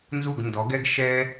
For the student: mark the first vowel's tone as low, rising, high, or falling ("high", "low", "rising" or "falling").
falling